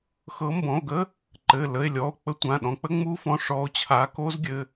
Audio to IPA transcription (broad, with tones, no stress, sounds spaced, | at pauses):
x ɤ˨˦ m b ɔ̃˩˧˩ o̯ ɡ ə˦˥ | ǃ ɘ˩˧˩ l ə˩˧˩ e̯ lʲ ɔ˩˧˩ o̯ k͡p ə˦˥ tʷ ã˩˧˩ ɗ ɔ̃˨˦ k͡p ə˦˥ ŋ͡m u˦˥ f ɔ̃˩˧˩ ʂ ɔ˨˦ o̯ t͡ɕʰ a˨˦ k o˦˥ z ɡʲ ɘ˩˧˩